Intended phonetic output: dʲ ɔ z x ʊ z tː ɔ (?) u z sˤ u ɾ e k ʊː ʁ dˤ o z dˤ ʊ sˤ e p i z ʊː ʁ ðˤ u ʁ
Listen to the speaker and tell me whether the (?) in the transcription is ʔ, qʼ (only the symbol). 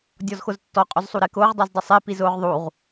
qʼ